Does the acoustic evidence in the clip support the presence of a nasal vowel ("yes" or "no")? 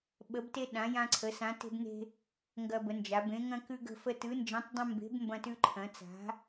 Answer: yes